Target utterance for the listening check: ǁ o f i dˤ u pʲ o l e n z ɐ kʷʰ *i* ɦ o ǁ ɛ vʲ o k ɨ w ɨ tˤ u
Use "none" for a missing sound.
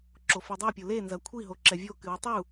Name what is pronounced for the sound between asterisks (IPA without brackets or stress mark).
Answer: i